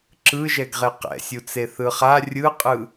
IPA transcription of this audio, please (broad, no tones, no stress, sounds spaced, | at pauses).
ǁ ɯ ʒ ɛ ɡ ʁ e q ɛ̰ sʲ u t͡s e θ ɯ χ a rʲ ɯ qʼ ɯ